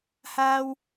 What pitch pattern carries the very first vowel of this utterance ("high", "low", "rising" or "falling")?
high